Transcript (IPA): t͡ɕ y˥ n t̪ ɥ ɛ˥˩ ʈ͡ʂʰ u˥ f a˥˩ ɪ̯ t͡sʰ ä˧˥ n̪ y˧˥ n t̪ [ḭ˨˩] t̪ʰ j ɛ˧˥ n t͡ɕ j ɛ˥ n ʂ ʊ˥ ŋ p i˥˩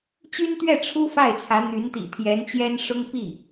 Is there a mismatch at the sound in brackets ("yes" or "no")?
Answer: no